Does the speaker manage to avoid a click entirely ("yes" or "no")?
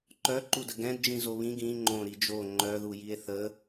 no